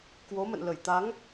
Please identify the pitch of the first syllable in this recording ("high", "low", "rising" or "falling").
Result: rising